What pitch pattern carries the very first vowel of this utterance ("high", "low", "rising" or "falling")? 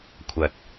low